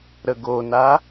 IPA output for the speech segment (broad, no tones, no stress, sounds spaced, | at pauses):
ɾ ə ɡ o n a